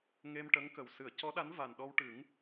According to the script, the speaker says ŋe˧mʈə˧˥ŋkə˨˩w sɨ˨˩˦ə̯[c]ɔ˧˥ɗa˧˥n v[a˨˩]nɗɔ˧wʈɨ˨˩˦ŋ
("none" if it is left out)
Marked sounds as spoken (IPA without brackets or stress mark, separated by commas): c, a˨˩